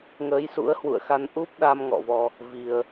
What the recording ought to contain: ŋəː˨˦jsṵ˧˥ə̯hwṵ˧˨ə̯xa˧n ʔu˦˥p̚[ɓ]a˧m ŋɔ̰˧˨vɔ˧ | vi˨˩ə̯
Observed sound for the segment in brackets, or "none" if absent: ɗ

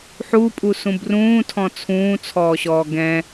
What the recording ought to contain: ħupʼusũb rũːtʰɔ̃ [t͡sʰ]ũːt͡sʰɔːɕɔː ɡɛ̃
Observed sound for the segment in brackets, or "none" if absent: t͡sʰ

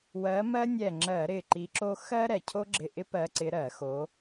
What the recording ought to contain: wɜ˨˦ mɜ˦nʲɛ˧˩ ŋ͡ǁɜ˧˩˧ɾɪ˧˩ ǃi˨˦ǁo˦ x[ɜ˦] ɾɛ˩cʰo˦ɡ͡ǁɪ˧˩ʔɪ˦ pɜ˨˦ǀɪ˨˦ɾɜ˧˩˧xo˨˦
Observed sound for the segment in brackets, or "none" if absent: ɜ˦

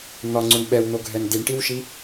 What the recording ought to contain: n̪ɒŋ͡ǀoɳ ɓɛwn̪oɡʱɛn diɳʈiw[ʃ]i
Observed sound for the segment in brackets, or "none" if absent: ʃ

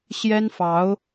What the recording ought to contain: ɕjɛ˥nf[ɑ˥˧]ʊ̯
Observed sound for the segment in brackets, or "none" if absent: ɑ˧˥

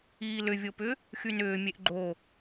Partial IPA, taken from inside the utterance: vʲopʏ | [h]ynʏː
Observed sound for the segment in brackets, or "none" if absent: x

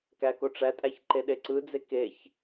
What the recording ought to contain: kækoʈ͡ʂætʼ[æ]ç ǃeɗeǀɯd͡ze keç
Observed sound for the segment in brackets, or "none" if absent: æ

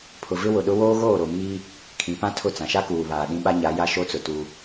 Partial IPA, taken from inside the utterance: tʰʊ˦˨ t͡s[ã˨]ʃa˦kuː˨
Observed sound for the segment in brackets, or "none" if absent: ã˨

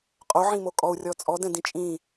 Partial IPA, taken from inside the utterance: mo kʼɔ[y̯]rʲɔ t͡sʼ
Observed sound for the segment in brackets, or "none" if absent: u̯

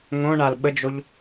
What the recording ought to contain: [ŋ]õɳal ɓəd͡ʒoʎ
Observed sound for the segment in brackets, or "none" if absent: ŋ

